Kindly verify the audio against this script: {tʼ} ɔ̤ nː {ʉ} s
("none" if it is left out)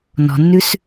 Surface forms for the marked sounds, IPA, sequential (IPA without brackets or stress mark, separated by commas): n, ʉ